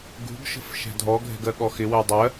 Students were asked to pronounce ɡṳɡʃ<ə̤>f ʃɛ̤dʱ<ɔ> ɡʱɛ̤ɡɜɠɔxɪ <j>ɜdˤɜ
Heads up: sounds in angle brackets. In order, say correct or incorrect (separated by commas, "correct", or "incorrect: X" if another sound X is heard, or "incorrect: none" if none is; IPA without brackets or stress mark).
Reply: correct, correct, incorrect: w